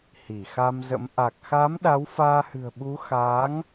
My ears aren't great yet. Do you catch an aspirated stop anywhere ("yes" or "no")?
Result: no